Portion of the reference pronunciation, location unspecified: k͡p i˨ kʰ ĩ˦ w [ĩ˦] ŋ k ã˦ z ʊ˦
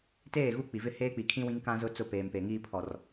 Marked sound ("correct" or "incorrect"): correct